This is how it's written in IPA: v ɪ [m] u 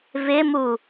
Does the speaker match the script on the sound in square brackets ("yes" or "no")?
yes